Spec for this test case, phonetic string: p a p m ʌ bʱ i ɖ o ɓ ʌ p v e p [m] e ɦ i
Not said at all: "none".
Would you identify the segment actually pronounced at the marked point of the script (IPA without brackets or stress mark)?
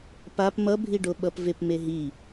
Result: m